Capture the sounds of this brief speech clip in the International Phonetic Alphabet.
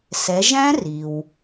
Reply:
s ɛ˩˧ ʒ æ̃˦˥ r i˩ w

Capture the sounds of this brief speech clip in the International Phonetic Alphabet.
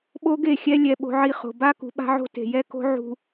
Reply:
ɓ o˦ ɡ e˦˨ xʲ ɛ˦ lʲ ɛ˦ ɓ o̤˦ ʕ i˦ χ o̤˨ b a˦ k ṳ˨ ɓ a̤˦ ʕ o̤˦ t e̤˨ j ɛ˦ k o̤˦ ʕ ṳ˨

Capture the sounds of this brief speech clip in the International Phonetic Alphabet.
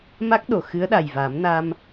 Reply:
m a˦˥ k̚ ɗ o˨˩˨ x ɨ˧˥ ə̯ ɗ a˨˩ j v a˨˩˦ m n a˧ m

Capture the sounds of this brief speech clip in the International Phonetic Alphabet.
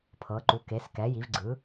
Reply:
pʰ ɤ˩˧ ǃ u˩˧ k e˩˧ s k ɛ˩˧ j i˩˧ v ɡ͡ǀ ɯ˩˧

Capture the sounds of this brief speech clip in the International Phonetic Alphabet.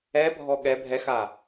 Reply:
ɛ bʱ ɔ ɠ ɛ bʱ ɛ x a

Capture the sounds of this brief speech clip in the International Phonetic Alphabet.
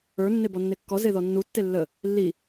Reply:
ə˞ nː e b ɔ nː e kː ɔ z e ð ɔ nː u tː e lː ə | lː i

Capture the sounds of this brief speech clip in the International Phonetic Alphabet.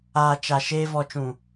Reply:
aː˨ t͡ʃ a˨ ʃ eː˧ v ɔ˨ t͡ʃ ũ˨

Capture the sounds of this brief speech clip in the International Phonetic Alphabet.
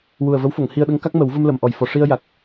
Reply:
w u˨˩ ə̯ v ə˧˥ w f o˨˩˨ ŋ h i˧ ə̯ ɗ ə˧˥ ŋ k a˦˥ k̚ m ə˨˩˦ w v ə˧ m l ə˨˩˨ m ʔ ɔ˨˩ j f ɔ˨˩ ʂ i˧ ə̯ j a˨˩ k̚

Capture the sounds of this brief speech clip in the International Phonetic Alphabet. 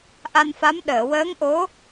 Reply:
ʔ a˧ n f a˧˥ m ɗ əː˨˩˨ w əː˧˥ ŋ ʔ o˧˥

